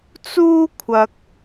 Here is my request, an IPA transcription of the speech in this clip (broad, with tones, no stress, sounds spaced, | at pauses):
t͡s uː˥ kʷʰ ɐ˧ k̚